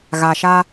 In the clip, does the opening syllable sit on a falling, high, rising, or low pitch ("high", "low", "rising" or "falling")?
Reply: low